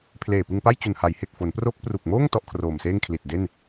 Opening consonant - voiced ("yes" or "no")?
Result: no